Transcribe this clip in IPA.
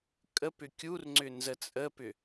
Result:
kʼ ə p ʏ kʲ u r ŋ͡ǀ ʏ n z ə t͡sʼ ə p ʏ

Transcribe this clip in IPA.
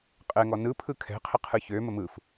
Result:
qʼ ɛ ŋ ɔ n ɯ pʰ ɯ kʰ ɛ̤ qʰ ə qʰ ɯ ç ø m ə m ɯ f

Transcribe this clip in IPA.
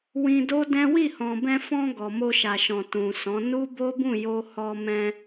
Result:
w ĩ˧ d o˦ d ɛ̃˦ w i˦˨ h ɔ̃˨ b ɛ̃˧ f ɔ̃˧ ɡ ɔ˨ m o˧ ʃ a˨ ʃ ɔ̃˨ t ũ˨ s ɔ̃˨˦ n u˦ b o˦ b ũ˦˨ j o˧ h ɔ˧ m ɛ̃˧

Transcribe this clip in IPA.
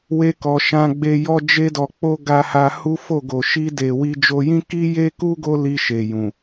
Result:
w e˦ k ɔ˧ ʃ ã˧ ɡ͡b e˧ j ɔ˦ d͡ʒ e˦ d ɔ˧ k͡p o˦ ɡ a˧ h a˧ h u˦ f o˦˨ ɡ o˨ ʃ i˧ d e˨ w i˧ d͡ʒ o˧ j ĩ˦ k i˦ j e˦ k u˦ ɡ o˦ l i˧ ʃ e˨ j ũ˨

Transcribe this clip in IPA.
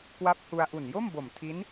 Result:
k w a˦˥ p̚ h u˧ a̯ ʔ u˨˩ n j o˥˩ m b o˨˩ m tʰ i˦˥ n

